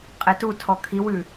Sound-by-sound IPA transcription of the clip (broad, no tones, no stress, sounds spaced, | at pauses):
qʼ e t u tʰ ɔ kʰ i w ʉ